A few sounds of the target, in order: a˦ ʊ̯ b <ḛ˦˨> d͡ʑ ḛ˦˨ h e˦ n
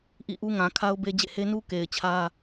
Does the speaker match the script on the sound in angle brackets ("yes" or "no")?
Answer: no